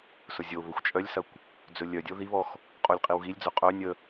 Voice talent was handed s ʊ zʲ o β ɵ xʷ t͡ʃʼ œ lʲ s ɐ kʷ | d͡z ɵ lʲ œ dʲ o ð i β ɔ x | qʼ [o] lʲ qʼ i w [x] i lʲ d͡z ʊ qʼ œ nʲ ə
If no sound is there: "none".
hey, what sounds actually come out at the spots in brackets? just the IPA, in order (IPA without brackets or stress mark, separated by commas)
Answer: o, ɣ